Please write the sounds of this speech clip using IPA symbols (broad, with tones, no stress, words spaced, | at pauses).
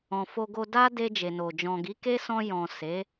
ɔ̃˨fo˧ɡo˧ da˦de˧ d͡ʒe˨no˨ d͡ʒɔ̃˨ɡi˨˦ke˦ sɔ̃˧jɔ̃˨ se˨˦